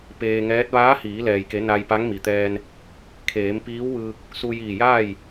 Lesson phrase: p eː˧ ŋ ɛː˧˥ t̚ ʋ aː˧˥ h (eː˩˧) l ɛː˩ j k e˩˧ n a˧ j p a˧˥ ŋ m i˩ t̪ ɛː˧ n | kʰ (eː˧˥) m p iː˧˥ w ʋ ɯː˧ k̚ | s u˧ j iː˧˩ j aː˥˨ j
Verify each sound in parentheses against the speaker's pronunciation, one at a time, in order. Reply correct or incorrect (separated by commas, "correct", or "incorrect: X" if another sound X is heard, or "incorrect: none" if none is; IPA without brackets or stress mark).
incorrect: iː˩˧, incorrect: eː˩˧